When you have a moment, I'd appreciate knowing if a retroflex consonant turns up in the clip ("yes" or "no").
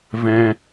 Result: no